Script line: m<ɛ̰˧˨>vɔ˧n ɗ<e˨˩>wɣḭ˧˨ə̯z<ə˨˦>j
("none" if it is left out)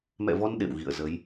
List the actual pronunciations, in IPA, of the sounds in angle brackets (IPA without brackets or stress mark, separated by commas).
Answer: ɛ̰˧˨, ḛ˧˨, ə˨˦